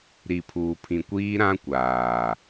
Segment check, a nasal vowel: present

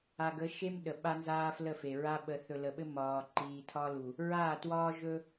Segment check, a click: present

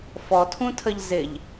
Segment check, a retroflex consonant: absent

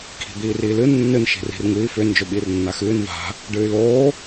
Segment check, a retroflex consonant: present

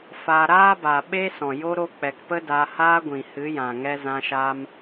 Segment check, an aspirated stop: absent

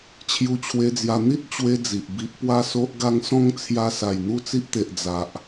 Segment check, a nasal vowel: present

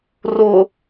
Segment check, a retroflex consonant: absent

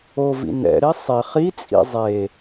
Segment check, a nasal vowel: absent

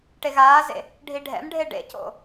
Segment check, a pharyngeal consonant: absent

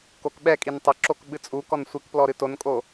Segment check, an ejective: present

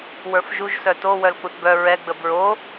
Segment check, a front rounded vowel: present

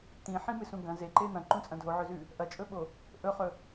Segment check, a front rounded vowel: absent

